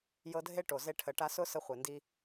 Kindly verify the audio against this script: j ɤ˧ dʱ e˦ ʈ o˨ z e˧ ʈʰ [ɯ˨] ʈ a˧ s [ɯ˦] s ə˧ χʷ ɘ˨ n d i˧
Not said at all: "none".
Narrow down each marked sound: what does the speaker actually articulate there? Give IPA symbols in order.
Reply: ə˨, ʊ˦

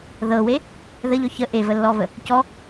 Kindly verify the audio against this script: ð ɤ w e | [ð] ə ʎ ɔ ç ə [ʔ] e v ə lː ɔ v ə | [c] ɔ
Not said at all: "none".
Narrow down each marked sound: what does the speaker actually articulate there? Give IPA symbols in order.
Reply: ð, ʔ, c

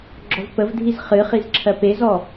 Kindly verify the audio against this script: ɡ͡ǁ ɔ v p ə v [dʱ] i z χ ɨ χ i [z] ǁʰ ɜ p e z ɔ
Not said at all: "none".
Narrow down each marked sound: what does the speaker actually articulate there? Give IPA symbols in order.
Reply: dʱ, z

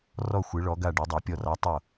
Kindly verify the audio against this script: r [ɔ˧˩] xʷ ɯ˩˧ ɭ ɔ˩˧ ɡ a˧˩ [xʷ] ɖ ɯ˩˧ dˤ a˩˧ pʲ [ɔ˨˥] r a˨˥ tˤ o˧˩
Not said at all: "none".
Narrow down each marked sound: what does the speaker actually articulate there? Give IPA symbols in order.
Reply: ɔ˧˩, none, ɔ˧˩

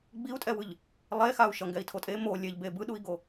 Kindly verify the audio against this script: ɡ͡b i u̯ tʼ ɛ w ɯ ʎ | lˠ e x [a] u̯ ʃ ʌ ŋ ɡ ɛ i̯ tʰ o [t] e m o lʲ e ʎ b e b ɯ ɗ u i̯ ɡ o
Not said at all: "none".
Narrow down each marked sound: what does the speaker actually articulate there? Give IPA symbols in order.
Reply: a, tʼ

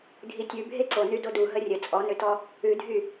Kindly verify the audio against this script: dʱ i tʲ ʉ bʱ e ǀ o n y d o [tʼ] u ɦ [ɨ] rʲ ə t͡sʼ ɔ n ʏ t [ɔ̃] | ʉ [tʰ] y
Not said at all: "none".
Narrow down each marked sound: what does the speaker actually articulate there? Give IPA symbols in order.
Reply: d, ə, ɔ, dʱ

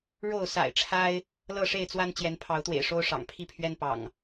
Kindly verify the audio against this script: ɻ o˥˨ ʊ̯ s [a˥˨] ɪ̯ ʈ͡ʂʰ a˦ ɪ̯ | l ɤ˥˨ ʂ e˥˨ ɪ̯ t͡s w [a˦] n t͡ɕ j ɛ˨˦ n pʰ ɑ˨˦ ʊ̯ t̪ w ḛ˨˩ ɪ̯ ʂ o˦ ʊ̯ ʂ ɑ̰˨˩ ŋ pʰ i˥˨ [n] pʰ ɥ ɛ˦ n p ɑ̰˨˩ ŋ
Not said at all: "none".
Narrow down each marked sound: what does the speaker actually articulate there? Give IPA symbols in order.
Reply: a̰˨˩, a˦, none

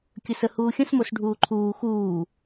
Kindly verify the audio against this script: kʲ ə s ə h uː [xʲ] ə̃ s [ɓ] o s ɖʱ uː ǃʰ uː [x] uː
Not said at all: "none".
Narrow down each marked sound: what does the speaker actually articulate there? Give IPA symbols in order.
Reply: xʲ, m, x

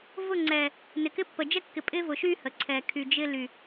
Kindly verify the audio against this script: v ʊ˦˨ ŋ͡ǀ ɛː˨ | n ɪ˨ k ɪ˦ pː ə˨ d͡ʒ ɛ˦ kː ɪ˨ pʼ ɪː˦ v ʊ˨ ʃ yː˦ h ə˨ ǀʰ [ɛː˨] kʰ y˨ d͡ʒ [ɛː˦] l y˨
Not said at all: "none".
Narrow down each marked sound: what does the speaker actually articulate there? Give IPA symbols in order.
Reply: ɛː˨, ɪː˦

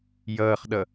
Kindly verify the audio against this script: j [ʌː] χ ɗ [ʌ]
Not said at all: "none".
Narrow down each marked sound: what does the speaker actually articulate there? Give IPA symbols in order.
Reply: ʌː, ʌ

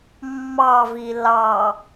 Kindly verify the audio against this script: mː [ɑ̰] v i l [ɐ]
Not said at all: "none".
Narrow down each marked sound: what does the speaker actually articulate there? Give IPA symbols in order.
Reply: ɑ, ɑ

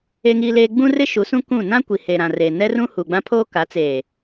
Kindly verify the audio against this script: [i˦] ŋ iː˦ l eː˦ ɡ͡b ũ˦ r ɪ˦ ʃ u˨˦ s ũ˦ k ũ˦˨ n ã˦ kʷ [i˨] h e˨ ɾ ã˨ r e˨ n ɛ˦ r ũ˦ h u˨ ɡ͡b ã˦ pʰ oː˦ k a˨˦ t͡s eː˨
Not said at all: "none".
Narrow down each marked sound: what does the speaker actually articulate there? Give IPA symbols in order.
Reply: e˦, i˨

